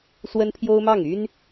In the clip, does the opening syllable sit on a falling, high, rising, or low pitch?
high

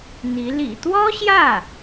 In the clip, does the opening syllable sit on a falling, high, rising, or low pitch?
rising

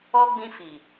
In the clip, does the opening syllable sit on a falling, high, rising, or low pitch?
high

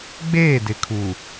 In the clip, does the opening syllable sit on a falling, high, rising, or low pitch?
falling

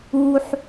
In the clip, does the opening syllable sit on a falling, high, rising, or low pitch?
low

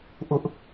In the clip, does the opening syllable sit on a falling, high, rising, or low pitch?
high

